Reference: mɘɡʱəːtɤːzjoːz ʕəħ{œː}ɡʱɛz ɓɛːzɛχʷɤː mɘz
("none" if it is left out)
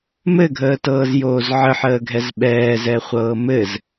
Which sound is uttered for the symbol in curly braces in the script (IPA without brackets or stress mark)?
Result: əː